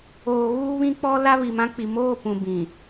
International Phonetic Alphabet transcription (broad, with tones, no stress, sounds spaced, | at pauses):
oː˨ ɣ uː˦ β ĩ˦ k͡p ɔ˦ l a˦ β i˨ m ã˦ k͡p i˨ m oː˦˨ p ũ˨ b ĩ˨